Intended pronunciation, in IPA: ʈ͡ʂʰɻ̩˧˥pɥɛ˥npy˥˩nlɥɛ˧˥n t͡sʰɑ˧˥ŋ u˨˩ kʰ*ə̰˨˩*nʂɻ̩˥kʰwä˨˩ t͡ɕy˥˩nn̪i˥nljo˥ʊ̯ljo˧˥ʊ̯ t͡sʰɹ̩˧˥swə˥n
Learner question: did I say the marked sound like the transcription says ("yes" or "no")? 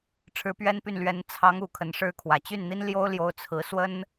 no